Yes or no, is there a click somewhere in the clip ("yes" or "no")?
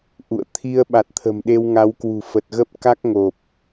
no